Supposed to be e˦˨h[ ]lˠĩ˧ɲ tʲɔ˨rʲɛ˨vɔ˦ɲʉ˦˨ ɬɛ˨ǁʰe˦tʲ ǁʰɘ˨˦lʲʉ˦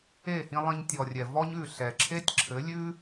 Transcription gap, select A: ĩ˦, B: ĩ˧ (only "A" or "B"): B